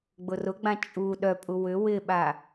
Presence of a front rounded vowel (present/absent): present